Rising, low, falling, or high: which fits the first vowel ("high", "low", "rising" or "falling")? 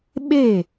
falling